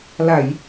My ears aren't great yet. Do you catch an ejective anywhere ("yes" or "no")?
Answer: no